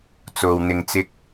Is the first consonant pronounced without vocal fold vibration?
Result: yes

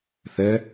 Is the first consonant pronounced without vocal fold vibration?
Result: yes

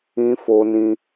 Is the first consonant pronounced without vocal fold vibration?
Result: yes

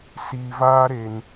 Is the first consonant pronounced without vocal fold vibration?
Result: yes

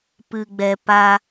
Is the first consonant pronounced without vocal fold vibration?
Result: yes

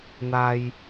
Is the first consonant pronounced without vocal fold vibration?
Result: no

